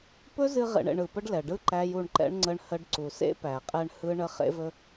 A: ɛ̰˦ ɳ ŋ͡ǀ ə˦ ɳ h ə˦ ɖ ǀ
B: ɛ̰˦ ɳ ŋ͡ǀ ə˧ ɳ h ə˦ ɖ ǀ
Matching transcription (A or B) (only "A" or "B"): A